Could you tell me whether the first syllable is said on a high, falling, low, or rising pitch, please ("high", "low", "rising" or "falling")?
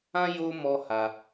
high